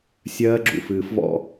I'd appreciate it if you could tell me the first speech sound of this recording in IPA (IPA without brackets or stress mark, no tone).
sʲ